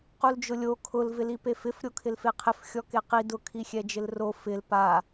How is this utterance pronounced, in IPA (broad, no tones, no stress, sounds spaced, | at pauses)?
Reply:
q u l d͡ʒ ʊ lʲ o kʰ ʊ l v ɪ l i p e f ɪ f ɾʲ o kʰ ɪ l f e qʰ ɪ f xʲ ɔ k e q i d ʊ kʰ i xʲ ɛ d͡ʒ ɪ l r o f ɪ l p a